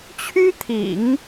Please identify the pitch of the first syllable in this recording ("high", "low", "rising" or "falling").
high